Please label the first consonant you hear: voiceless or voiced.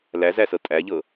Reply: voiced